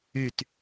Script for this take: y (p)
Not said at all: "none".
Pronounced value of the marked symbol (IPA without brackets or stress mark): t